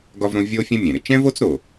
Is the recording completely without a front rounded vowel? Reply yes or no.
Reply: yes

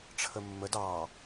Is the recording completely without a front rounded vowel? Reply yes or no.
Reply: yes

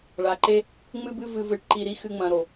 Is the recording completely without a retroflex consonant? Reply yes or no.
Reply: no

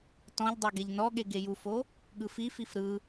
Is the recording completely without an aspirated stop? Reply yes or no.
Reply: yes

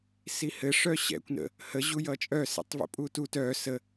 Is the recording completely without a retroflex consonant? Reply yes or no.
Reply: no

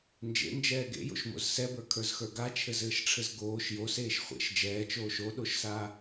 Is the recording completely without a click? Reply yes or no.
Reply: yes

